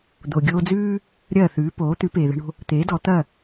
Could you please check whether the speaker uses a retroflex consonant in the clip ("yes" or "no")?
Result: yes